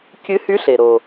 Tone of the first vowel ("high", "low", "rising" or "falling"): rising